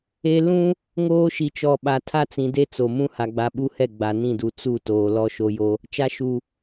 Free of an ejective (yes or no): yes